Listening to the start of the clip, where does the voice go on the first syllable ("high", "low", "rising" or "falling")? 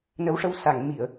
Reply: rising